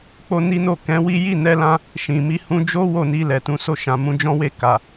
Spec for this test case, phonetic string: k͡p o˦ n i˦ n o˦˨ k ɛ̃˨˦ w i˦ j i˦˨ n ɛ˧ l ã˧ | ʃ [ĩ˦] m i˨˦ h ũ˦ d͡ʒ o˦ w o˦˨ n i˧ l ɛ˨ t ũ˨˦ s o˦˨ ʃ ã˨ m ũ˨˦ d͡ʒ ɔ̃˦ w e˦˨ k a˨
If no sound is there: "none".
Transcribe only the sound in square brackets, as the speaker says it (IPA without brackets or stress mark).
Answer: ĩ˨